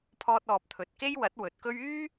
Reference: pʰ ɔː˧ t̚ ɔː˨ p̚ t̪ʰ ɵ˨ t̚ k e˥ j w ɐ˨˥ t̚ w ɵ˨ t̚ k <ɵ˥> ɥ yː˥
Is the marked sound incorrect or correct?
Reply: correct